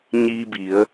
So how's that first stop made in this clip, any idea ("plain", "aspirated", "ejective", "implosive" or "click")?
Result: plain